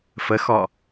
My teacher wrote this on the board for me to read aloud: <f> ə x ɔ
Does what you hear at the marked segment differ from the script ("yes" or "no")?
no